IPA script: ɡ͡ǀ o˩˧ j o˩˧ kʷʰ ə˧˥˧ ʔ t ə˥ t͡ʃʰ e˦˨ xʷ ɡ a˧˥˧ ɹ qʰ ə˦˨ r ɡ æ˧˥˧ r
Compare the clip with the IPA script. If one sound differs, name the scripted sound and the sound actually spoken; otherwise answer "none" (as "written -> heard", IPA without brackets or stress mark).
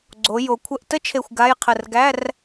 ɹ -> j